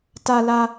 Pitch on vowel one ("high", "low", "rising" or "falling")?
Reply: high